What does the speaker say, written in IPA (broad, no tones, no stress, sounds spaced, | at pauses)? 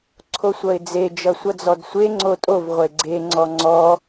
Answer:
ǀʰ o sʷ ʌ ɪ̯ d͡z e d͡ʒ ʌ sʷ ʌ d͡z ɔ d sʷ e ŋ͡ǀ o tʼ o v ʁʷ e ɡ͡ǀ e ŋ͡ǀ ɔ ŋ͡ǀ ɔ